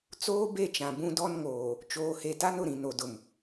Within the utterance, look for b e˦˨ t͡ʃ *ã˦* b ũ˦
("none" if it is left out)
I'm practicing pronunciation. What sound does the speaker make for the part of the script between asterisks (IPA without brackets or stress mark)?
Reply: ã˨